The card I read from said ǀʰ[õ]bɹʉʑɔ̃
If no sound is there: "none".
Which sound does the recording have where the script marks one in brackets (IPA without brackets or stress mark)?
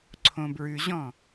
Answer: õ